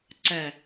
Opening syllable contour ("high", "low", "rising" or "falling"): low